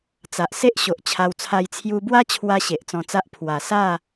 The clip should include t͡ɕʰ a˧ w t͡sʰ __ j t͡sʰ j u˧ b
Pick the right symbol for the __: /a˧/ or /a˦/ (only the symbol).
a˧